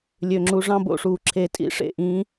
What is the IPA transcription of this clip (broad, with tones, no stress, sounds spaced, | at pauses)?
lʲ ø˩ ŋ͡ǁ u˩ ʐ ɑ̃˥˧ b o̰˥˧ ʂ uː˩ ǁʰ e˨˩˦ tʼ ḭ˦˥ ʂ ḛ˥˧ ʔ ĩː˨˦